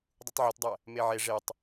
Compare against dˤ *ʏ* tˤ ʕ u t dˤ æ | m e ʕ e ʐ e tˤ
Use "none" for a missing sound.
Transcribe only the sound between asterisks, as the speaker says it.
u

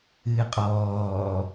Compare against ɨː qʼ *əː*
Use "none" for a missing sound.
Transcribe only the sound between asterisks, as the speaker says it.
ɔː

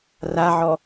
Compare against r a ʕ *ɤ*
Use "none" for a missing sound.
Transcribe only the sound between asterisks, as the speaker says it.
ɔ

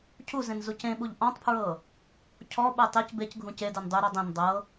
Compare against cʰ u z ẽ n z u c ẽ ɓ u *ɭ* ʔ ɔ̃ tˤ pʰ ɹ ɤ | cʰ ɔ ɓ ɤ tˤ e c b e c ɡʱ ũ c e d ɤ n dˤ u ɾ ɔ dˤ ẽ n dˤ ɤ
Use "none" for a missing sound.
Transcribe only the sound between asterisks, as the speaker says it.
ʎ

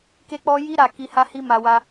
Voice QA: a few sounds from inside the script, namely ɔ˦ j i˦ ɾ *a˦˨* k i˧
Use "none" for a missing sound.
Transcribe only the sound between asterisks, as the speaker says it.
a˦˨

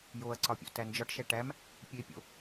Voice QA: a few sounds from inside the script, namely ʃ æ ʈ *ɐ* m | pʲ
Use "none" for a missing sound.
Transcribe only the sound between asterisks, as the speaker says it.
æ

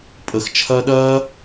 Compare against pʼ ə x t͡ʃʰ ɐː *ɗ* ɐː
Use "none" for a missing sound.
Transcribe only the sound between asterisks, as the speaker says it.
ɗ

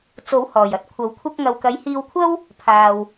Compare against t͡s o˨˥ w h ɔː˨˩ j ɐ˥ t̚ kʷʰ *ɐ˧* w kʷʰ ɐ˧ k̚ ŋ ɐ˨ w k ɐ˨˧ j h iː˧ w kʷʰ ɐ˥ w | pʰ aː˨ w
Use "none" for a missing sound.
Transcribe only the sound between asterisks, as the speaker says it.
ɐ˨˥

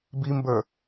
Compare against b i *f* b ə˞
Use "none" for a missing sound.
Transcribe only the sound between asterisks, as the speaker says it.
m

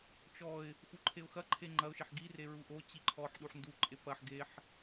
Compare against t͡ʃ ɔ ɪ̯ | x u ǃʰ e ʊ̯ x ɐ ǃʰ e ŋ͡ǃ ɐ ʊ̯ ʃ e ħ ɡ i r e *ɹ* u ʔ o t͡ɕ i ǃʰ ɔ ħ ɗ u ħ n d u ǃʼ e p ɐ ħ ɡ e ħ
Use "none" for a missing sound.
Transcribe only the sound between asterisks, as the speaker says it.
ɹ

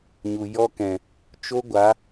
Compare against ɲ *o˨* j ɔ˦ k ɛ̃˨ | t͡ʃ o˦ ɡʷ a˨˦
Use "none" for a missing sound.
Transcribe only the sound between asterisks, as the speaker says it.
u˨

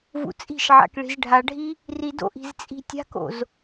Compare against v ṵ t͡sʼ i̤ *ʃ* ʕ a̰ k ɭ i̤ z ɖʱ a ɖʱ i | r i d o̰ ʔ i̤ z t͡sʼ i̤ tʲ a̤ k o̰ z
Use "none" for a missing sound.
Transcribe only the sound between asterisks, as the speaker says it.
ʃ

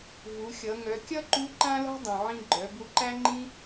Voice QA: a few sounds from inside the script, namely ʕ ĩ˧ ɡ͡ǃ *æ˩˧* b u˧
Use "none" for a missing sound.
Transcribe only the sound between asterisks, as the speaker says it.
œ˩˧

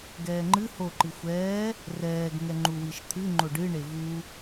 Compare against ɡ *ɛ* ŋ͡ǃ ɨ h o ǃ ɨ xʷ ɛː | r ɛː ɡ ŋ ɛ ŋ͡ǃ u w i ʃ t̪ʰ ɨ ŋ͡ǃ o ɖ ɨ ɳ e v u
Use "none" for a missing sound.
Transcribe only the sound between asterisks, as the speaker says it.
ɛː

